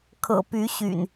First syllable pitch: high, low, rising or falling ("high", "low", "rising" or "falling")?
low